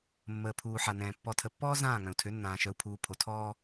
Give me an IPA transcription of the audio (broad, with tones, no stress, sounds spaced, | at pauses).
mː əː˨ pʰ uː˨ ħ a˨ n ɛ̃ː˨ pː ɔ˨ tʰ ə˨ pː ɔː˦ z ãː˦˨ ŋ œ̃˨ u̯ tʰ ø˨˦ nː ãː˨ ʃ œ˨ u̯ pʰ uː˨ pʰ o˨ tʰ ɔː˦